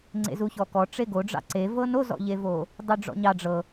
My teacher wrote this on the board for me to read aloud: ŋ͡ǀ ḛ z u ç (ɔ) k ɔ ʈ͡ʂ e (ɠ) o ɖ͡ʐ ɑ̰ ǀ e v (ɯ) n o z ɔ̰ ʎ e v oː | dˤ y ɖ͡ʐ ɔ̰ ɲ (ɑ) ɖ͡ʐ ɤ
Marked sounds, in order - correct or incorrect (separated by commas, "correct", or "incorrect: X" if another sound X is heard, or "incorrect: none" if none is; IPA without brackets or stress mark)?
correct, incorrect: ɡ, incorrect: ɤ, correct